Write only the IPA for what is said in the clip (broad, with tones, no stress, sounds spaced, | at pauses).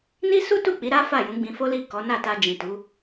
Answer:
n i˦ s u˦ t u˦˨ k͡p i˨˦ ɾ a˦ f a˦˨ j ũ˨˦ ɡ͡b ĩ˧ f o˦ l i˦˨ k ɔ˨˦ n a˦˨ t a˧ d͡ʒ ĩ˨ t u˨˦